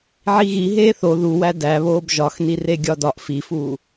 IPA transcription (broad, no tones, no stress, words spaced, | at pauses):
ʕiɣi ɦeːθo ðuwæ dæβoːb ʒɒxnire ɡʲɒdɒʔ fifuː